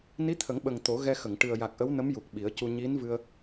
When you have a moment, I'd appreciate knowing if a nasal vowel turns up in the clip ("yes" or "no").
no